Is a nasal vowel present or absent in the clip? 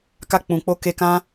present